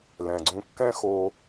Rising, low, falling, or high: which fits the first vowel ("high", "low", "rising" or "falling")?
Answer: low